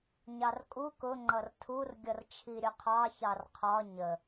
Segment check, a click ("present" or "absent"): present